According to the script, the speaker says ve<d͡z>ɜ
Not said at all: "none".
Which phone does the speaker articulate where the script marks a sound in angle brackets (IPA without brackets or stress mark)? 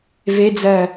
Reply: d͡z